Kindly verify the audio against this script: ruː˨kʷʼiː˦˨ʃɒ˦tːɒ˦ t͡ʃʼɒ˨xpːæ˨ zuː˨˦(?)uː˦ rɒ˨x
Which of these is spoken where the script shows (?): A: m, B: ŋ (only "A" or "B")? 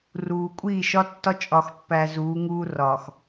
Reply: B